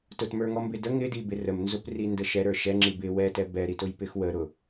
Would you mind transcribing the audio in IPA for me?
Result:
t ʊ t m ə˞ ŋ ɔ m b ɪ d ə ŋ ɪ d i b ɪ r ə m n z ʊ p r i n d ə ʃ ɛ ɾ ə˞ ʃ ɛ ŋ͡ǁ i b ɪ w ɛ t ɛ b ɛ ɾ i t ʊ j p ɪ x w ə ɾ ʊ

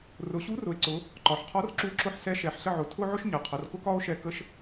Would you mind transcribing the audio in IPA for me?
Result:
r ʊ˩˧ ɕ u˧˥ r ʊ˩˧ e̯ ǀ ʊ˩˧ | ǃ ɒ˩˧ ħ qʰ ɒ˧˥ r ǁ u˧˥ ǁ ʊ˧ ħ s ɛ˧˥ ʃ ɛ˩˧ ħ ɬ ə˧ ʕ ʊ˩ tʰ ʊ˥ ʕ ʊ˥ ʃ ɲ ʌ˩˧ qʰ ʌ˩˧ r k ʊ˥ k ɒ˥ o̯ ʃ ɛ˧ k ə˥ ʃ

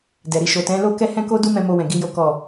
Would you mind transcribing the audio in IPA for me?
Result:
d ɛ˨ ɾ i˧ ʃ o˨ t ɛ̃˨˦ l o˦ k ɛ˦ h ɛ̃˦ k o˦ d u˦ m ɛ̃˦ m o˦ w ɛ̃˧ ɡ i˦ j o˦ k ɔ˦˨

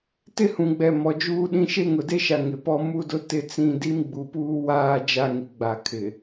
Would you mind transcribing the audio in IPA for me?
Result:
t ɪ˦ h ũ˨ ɡ͡b ɛ˨ m ɔ˨ d͡ʒ uː˦ ɗ ĩ˦ ʃ e˦ ŋ ʊ˨ d e˦ ʃ a˨ ŋ ɪ˨ p ɔ˦ m u˦ d ʊ˦ t ɪ˦ t͡s ĩ˦˨ d i˦ m ɡ͡b u˨ p uː˦ w aː˦ d͡ʒ a˦ ŋ i˨ ɡ͡b a˨ kʰ ɪ˨

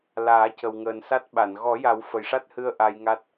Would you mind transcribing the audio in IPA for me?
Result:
l aː˨˩˦ c ə˨˩ w ŋ əː˨˩ n s a˦˥ t̚ ɓ a˨˩˨ n ɣ ɔ˨˩˦ j a˨˩˦ w f ə˨˩ j ʂ a˦˥ t̚ h ɨ˧ ə̯ ʔ a˧ j ŋ a˦˥ t̚

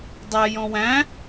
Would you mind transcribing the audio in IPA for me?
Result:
dˤ æ j ɔ̃ w æ̃

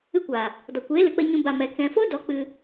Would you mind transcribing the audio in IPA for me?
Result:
ɨ˧ kʷ a˨ | d ɔ˨ kʷ eː˨˦ l ɨ˨ k͡p ə˧ ɲ ũ˨ b a˨ m ɛ˨ k ɛ̃˨ f o˦ d ɔ˨˦ k͡p ɨ˧

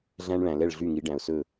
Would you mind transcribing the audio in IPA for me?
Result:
ɮ æ̃˦ ɳ ɭ æ̃˨ l ɛ˦˨ ɭ ɮ y˦˨ ŋ i˨˦ ɖ æ̃˨ ʊ̯ s ɵ˦˨

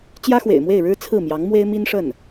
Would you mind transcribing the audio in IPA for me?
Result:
t͡ɕ j ä˥ x w ḛ˨˩ ɪ̯ m w e˥˩ ɪ̯ ɻ ɻ̩˥ t͡sʰ ɹ̩˥˩ m j ɑ˧˥ ŋ m w e˥ ɪ̯ m i˥ n ʂ ə˥˩ n

